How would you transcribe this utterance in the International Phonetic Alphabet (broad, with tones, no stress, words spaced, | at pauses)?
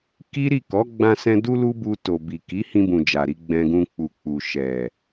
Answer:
ki˦ ɾi˦˨kɔ˨˦ ɡ͡bã˧sɛ̃˧ du˦lu˦bu˧ to˨bi˨ ki˨˦hĩ˧bũ˨ d͡ʒa˨ɾi˧ ɡ͡bɛ̃˧ɡũ˧k͡pu˨ k͡pu˨ʃɛ˨